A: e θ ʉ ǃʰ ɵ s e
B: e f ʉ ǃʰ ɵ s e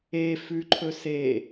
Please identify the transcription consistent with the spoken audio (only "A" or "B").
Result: B